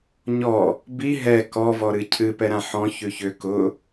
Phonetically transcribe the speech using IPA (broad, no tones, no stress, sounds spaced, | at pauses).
ɲ ɔ | b i ɦ ɛ k ɔ v ɔ ɾ ɨ cʰ ɨ p ɛ ɾ ã ħ ɔ̃ ç ʉ ç ʏ k ʊ